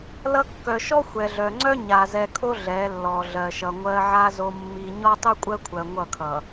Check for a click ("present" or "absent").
present